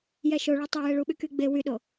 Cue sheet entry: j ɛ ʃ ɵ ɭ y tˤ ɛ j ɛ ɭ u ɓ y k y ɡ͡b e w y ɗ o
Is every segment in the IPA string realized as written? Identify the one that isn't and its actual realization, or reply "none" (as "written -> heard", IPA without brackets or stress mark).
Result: ɵ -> o